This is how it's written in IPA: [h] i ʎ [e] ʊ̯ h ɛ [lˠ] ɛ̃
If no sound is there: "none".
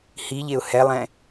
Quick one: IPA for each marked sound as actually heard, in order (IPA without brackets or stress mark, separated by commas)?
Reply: h, e, lˠ